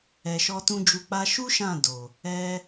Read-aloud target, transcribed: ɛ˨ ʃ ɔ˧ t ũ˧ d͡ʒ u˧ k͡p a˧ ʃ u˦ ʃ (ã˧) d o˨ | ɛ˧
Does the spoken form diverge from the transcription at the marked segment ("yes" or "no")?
yes